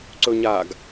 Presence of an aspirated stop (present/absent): absent